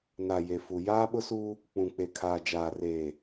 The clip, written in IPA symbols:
n a˨ j e˨ f u˨ j aː˦ ɓ ʊ˦ s uː˦ | k͡p ũ˨ k͡p e˨ kʰ aː˨ d͡ʒ aː˨ r eː˨

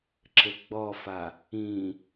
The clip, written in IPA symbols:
ǁ ɘ ɡ͡b ɔ f a | ĩ

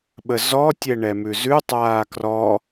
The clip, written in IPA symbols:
ɓ ə z ɔ tʲ ɛ ɳ ɛ m ʉ z ʉ tˤ aː k r ɔ

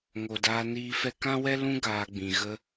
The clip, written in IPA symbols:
ŋ o˨ d aː˧ n iː˧ f ɛ˦ k ã˦ w ɛ˦ l ũ˦ ɡ aː˧ ɡ͡b ĩ˨ ɣ ə˧

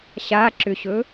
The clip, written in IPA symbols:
ɕ a ǁ ʏ ɕ ɵ

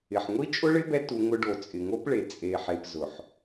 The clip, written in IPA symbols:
ɪ˨ ħ ŋʷ i˦ t͡ʃʼ ʊ˦ ɭ ɪ˦ b ɛ˦ t u˧ ŋ ʊ˧ ɖ o˨ t͡sʼ ɪ˨ ŋ o˦ p ɭ e˨ t͡sʼ e˨ ħ e˨ p z ʊ˨ ħ

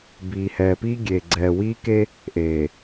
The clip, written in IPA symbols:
b iː˨ h ɛː˨ p iː˦ ɡʲ eː˨ ɡ͡ǀ ɛː˨ w iː˦ k e˦ | ʔ eː˨

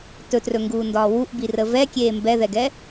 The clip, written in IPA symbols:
t ɵ t r ɵ ŋ ɡ uː n d ɒː w u ʔ b i r ə v ɛ kʲ eː m b ɛ ð ɛ ɡ ɛ

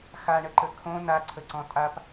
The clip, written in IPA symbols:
x a ɳ ə ǃ ə kʰ õ n a ǀʰ ə ǀ ɔ̃ tʼ a p

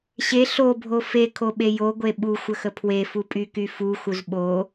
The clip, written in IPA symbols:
ɕ e ɬ o bʱ o f e kʰ o ɓ e j o ɡʷ e ɓ u xʷ ə x ə pʰ w e f u pʼ y k y f u x u z ɓ o

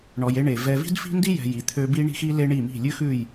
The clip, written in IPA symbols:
ɳ ɔ˨ j e˦ ɳ e˨ v ɛ˨ v i̤˦ d f i̤˦ n d i˦ j ɛ̤˨ j i˨ t̪ʰ ø˦ b i˦ ɳ i̤˦ x i˦ l e˦ ɳ i˦˨ m i̤˦˨ lʲ ʉ˦ x ʉ˦˨ j

